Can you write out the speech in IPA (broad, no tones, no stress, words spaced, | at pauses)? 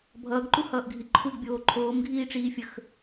bʱʌːɡǃuhʌːʔɡʱi ǃʰuɡbʲoː ǃʰoːmɡʱiːʈ͡ʂiːfʲəx